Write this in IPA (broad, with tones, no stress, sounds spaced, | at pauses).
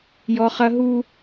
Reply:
j ɔ˦ χ ɐ˦ ɦ u˦